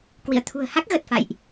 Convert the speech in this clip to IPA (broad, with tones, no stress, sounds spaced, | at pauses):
k w ḭ˧˨ ə̯ t̪ʰ ṳ˨˩ ə̯ h a˦˥ k̚ ɣ ə˨˩ t̚ f a̰˧˨ j ʔ